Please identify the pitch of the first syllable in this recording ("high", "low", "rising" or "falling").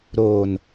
low